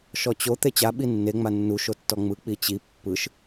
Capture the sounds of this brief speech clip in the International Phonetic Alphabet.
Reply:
ʃ ɔ t͡ɕ o t̪ e t͡ɕ a ɓ i nː e ŋ͡m a nː u ʃ o tː ɔ ŋ͡m ɯ k͡p i t͡ɕ i pː ɯ ʃ

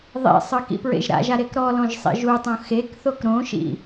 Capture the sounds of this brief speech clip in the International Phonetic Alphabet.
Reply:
ðˤ ḛ sˤ ɯ k ḭ p ɹ ḛ ʒ ɾ a̰ ʒ a ɾ e k ɾ ɔ l ɔ̃ ʒ sˤ ḭ ʒ u tˤ õ x e k θ o k ɾ õ ʃ ḭ

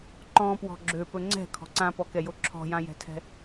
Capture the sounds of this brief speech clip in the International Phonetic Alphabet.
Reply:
ǃ ɔ̃ p w ɔ̤ ɡ͡ǁ ø p ɵ ŋ͡ǀ ɛ̤ kʰ ɔ̤ ǀ ã p ɔ k ɛ j o ǁʰ ɔ̤ j ã j ɛ̤ tʰ ɛ̤

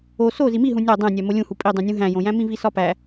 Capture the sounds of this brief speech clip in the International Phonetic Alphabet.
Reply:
o s o z i m i ɦ ũ nʲ ɒ dˤ æ̃ nʲ æ m o lʲ ũ h u pʼ i dˤ ũ nʲ ũ ɦ æ̃ j õ j æ̃ m ĩ v i s ɒ p æ

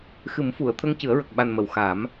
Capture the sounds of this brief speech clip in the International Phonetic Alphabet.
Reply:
x ɨ˨˩˦ m f u˨˩˨ ə̯ t̪ʰ ə˧ ŋ c ɨ˨˩˦ ə̯ ɹ ə˨˩ k̚ ɓ a˨˩ n m ə˨˩˨ w x a˨˩˦ m

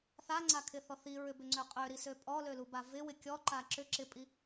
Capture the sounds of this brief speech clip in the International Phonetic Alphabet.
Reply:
θ a ŋ͡ǀ a kʰ ɪ θ ɔ θ i ɹ ʏ b ʏ ŋ͡ǀ ø qʼ ø ɾ i s ø pʼ ɔ l ø l u b a v ɪ w ɪ kʲ ɔ ǃ a ǁ ʏ ǁ ɪ pʼ i

